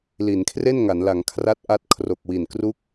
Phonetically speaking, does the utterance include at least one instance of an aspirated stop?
yes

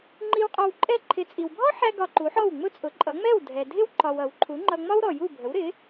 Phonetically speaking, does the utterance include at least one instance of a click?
yes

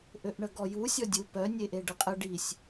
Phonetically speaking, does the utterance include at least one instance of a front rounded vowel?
yes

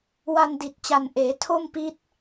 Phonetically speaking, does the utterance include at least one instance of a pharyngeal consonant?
no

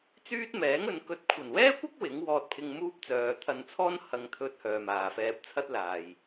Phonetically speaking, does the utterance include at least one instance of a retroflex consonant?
no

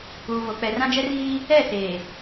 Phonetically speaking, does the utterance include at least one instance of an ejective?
no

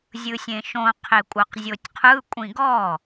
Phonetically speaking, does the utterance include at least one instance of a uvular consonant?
yes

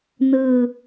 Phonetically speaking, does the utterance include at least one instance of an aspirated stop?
no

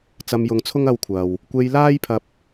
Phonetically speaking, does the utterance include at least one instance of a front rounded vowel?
no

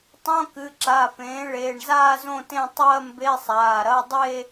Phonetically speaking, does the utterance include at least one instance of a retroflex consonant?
yes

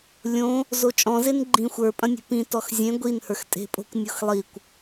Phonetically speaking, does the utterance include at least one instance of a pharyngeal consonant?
no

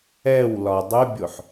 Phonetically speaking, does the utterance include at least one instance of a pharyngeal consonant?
yes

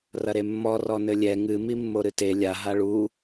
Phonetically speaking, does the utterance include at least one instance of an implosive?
no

